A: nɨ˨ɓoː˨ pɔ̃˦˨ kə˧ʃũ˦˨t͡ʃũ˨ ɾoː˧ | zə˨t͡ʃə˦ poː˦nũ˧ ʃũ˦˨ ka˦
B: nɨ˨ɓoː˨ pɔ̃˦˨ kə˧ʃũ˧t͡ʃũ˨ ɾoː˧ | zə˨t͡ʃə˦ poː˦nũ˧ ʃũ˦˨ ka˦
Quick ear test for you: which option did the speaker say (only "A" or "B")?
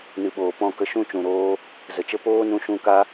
A